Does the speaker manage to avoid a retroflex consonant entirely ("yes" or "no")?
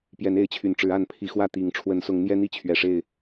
no